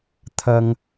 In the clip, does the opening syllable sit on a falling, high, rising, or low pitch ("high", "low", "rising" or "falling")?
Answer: high